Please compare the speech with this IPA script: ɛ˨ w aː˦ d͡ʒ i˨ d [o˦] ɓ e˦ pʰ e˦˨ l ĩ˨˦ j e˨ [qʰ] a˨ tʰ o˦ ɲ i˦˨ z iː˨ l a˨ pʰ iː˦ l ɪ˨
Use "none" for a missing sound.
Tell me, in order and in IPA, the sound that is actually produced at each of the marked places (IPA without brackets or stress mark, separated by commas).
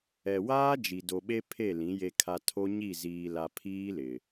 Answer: o˨, kʰ